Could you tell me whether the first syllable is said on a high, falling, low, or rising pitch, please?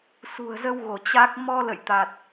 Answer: low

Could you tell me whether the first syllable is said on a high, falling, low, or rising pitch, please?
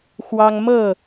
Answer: high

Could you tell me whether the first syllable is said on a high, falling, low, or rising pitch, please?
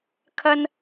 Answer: high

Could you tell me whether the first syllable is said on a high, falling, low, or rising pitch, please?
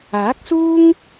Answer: rising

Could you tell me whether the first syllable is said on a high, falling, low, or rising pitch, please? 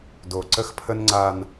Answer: low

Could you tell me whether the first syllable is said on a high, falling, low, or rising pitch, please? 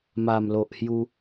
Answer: low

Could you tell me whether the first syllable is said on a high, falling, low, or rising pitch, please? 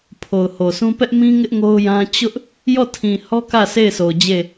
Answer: low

